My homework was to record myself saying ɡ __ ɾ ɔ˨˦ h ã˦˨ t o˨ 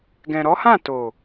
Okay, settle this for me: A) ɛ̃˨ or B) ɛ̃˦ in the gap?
A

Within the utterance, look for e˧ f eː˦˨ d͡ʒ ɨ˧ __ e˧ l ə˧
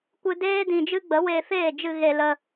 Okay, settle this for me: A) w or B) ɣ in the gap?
B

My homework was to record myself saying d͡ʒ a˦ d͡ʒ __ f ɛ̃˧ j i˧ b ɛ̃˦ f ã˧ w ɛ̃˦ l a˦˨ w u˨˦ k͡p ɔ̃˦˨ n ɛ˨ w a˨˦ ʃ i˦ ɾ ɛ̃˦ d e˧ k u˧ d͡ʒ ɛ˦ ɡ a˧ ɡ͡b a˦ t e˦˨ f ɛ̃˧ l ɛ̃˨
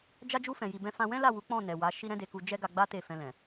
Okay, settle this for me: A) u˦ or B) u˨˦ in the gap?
A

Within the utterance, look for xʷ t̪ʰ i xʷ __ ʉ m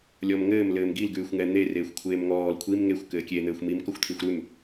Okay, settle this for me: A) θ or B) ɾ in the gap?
B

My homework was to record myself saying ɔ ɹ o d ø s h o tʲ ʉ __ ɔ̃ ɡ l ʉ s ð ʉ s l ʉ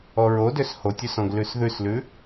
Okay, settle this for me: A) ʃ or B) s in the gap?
B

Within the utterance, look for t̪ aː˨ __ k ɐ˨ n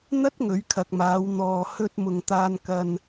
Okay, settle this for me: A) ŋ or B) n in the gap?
B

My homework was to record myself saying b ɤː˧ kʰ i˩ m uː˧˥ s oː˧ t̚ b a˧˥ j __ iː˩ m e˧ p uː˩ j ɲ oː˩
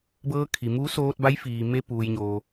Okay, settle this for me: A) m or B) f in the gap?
B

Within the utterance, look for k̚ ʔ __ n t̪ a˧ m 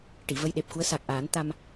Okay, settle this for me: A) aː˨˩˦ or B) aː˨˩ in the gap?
A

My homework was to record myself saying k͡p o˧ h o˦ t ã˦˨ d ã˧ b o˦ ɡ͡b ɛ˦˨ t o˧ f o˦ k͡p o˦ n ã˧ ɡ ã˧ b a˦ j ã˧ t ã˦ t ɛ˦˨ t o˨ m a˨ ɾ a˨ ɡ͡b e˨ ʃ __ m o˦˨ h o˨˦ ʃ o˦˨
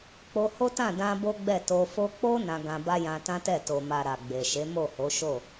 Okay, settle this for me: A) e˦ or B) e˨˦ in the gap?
B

